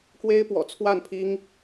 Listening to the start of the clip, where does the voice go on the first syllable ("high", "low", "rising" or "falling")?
high